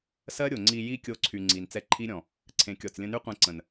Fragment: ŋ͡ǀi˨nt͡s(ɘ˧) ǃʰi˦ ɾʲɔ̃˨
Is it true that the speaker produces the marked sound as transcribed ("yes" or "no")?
no